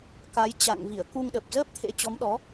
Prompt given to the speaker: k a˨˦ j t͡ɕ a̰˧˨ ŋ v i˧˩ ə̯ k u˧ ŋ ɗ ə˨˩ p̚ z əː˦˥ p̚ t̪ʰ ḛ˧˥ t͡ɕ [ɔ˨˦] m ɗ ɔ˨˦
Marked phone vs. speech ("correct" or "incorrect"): correct